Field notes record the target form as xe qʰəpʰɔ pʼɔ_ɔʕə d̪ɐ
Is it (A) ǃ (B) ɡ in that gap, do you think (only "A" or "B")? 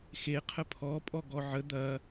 B